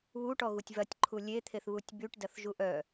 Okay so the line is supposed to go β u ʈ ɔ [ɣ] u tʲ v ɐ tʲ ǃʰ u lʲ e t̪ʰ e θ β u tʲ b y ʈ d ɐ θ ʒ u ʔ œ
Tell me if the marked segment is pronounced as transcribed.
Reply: yes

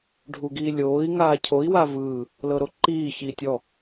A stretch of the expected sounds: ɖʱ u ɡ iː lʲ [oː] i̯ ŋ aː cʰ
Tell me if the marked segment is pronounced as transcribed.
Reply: yes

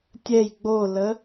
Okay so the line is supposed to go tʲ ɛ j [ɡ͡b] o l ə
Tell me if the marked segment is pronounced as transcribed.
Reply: yes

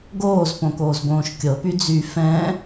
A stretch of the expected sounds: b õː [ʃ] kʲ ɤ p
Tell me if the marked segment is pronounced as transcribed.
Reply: yes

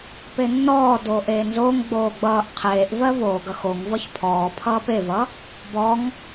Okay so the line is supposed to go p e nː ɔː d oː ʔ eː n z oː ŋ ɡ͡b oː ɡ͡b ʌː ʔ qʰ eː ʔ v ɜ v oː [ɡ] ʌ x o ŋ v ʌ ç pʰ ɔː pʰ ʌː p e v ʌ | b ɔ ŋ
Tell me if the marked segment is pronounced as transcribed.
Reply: yes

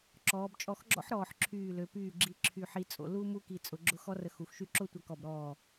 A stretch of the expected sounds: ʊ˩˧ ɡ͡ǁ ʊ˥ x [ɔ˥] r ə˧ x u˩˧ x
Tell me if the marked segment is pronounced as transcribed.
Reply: yes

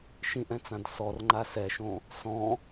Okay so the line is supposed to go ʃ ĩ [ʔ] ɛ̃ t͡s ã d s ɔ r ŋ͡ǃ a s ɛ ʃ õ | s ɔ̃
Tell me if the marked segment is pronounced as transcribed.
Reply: yes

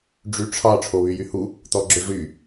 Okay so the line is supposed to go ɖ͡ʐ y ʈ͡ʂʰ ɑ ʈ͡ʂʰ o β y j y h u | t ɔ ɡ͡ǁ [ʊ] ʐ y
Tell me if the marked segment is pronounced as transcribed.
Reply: yes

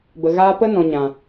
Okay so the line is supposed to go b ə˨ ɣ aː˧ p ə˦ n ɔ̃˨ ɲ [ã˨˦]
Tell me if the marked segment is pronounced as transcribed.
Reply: no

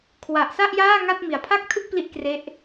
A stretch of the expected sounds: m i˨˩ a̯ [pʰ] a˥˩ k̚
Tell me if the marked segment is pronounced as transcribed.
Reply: yes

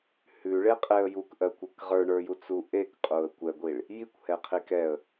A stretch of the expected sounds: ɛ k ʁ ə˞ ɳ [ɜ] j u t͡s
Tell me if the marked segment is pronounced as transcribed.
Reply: no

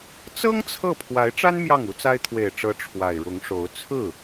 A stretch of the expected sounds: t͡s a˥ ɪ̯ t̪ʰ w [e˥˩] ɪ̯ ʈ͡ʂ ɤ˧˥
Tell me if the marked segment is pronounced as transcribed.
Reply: no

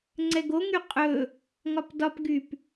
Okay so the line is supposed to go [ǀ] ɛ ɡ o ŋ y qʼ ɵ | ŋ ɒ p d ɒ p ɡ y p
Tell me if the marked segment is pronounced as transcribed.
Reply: no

